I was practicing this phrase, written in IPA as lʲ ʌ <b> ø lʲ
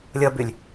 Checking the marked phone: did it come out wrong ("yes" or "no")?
no